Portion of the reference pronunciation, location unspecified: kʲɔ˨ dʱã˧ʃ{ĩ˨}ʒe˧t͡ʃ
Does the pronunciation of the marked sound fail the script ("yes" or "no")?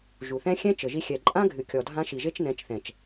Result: yes